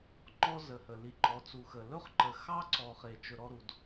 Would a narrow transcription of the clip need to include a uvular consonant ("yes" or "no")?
yes